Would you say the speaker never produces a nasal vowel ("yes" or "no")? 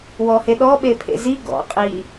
yes